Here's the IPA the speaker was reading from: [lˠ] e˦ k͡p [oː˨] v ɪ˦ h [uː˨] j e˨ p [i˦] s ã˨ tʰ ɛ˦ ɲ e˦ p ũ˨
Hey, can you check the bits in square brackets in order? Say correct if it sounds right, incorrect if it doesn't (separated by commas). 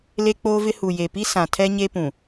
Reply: incorrect, incorrect, incorrect, correct